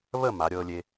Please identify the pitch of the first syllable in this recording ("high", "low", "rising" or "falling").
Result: falling